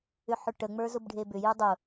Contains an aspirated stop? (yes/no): no